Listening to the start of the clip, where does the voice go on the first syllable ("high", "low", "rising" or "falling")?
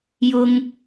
high